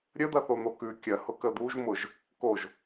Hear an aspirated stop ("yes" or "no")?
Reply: no